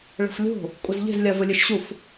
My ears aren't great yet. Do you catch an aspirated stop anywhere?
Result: no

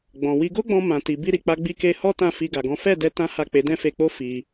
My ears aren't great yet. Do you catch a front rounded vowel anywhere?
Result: no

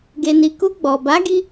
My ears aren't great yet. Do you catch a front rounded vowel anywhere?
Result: no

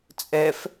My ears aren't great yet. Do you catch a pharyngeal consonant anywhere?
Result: no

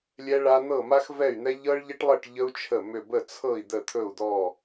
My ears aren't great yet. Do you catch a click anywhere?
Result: no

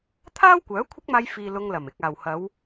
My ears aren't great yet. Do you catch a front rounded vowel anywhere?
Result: yes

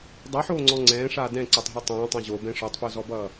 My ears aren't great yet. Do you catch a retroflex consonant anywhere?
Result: yes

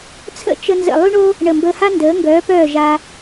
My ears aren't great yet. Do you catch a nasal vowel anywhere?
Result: no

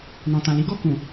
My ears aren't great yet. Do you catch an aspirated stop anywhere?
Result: no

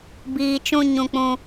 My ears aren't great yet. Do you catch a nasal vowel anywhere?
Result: yes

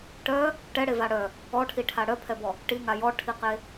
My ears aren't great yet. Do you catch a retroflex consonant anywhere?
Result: yes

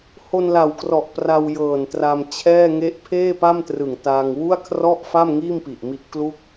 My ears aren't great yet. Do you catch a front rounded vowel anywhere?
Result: no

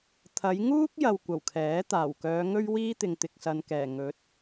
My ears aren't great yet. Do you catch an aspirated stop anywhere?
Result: yes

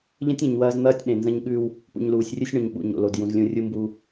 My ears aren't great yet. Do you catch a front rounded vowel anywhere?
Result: no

